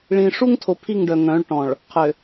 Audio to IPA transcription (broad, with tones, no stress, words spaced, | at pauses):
ɭĩ˨ ʂu˦ŋtʰo˨ pʰi˦˨ŋɖœ˨ŋœ̃˨˦ɭ ʈɔ̃˨ɭ | qʰø˨